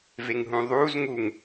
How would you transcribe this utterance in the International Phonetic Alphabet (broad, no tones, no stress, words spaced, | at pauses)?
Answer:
veŋɦũðˤuːz ŋuŋ